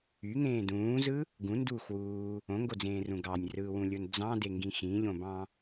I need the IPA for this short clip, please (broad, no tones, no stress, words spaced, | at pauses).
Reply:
yŋẽː dũːzɯ | ɡũnduːxwuː | õŋɡod͡zẽːrũ ɡɑnʲrɯːwũlʲon d͡zɑ̃deŋɡĩ xĩʎõbɑ̃